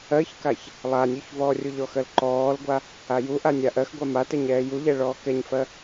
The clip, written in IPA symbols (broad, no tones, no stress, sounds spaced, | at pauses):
ɜ ç k a ç | lˠ a nʲ u ç v ɔː rʲ u ʎ ɔ x ɜ l ǃ ɔː l ɡʷ a | a j u ʔ a nʲ a ʔ ɜ x ɡʷ a m a t ɛ ɲ ɛː j u ʎ ɛ ɭ ɔː k ɛ ɲ f ɜ